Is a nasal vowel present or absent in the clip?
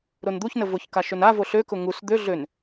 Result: absent